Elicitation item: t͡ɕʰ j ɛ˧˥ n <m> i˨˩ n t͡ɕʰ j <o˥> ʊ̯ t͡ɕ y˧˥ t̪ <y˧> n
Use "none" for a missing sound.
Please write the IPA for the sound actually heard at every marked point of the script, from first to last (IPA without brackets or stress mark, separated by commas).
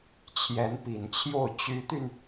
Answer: p, o˥˩, y˧